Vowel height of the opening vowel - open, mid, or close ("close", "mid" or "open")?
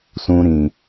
close